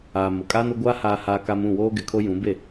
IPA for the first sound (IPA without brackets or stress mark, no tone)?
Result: aː